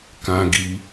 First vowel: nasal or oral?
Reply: nasal